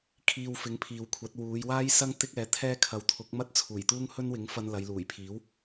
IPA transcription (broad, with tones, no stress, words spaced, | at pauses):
kʰiː˧wfɪ˨˥ŋpʰiː˨wkʷʰɐ˨˥t̚ wuː˨˧jwaː˥j sɐ˥ŋ t̪ɪ˥k̚ɛː˨˥t̪ʰɛː˥ kʰɐ˨˥w t̪ʰʊ˨˥k̚mɐ˥t̚t͡sʰuː˨˩j t̪uː˥ŋhɵ˥nwɪ˨˥ŋ fɐ˧nlɐ˨˧jluː˨˩jpʰiː˨˥w